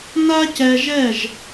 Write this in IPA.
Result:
na˦cɛ˧ʒɛ˦˨ʒ

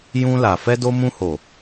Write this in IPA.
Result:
jũ˧la˨ fɛ˧do˧mũ˧ho˨

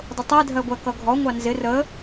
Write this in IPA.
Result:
dˤʊtˤɛ dʱɜɡʷækʌɡʱɔ ŋʷɑnzɪ rə

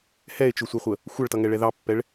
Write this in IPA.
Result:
hɛe̯t͡ʃʊsʷɛχʷə | xʷʌɭtʌŋɛɭɛ ðɑpːɛɭ

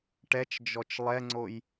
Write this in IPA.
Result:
ʈɛt͡ʃd͡ʒɔt͡ʃ lˠɛŋ͡ǀoj

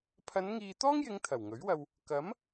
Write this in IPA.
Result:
pʰɐ˨˧nŋiː˨t̪ɔː˥ŋjɪ˨˧ŋ t̪ʰɐ˨˩wŋɵ˨˥ɥwɐ˧w | kɐ˨˥m

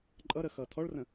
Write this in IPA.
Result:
ǃʼʌ ɾəxʌtʰɔɭrə̃

